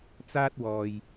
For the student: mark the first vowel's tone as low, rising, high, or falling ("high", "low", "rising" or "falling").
high